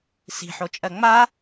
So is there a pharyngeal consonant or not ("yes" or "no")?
yes